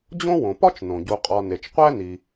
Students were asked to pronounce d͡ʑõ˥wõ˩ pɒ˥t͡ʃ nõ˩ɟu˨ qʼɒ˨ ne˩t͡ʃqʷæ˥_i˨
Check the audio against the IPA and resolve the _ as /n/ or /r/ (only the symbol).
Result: n